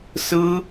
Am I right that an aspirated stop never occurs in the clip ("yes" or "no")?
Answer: yes